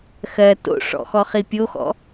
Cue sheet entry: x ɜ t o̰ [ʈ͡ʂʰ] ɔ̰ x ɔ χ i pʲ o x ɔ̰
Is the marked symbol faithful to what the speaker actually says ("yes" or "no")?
no